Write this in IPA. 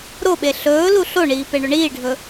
ɾ o ɓ e ɬ ɵː l u ɬ o ɳ iː p e ɳ ɵ ɳ iː ɖʱ ɵ

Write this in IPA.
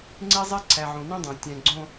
ŋ͡ǀ e˦ zˤ e˦ ǀʰ æ˨ ʕ õ˨ n ĩ˦ dˤ æ̃˨ tʲ æ̃˨ ɡ͡ǀ õ˦

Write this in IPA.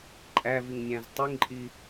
ǃʼ æ v i ŋ nʲ æ̃ z tˤ i ŋ ǃʼ i

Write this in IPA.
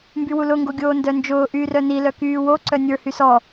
m b y w u l ʊ ŋ ɡ o ɡʲ oː n d œ n d͡ʒ ʊː ʔ yː r œ n i l œ k yː w o ǀ œ nʲ ə˞ h y s ɔ

